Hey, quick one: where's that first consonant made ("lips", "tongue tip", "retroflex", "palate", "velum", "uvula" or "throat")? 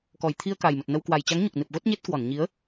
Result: velum